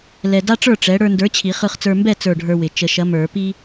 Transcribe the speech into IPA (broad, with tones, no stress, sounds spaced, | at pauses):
l ɛ˧ d a˥ ʈ͡ʂ ə˞˥˨ ʈ͡ʂ ɛ˨˥ ɽ ə˞˧ n d ə˞˨˥ t͡ɕʰ i˨˩˦ χ ɯ˧ χ t͡s ə˞˧ m b ɛ˥˨ t͡s ə˞˥˨ ɖʱ ə˞˥ w ɪ˨˩˦ t͡ʃ ə˨˩˦ ʃ ɐ˨˥ m ə˞˨˩˦ p i˥